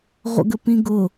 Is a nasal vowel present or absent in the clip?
present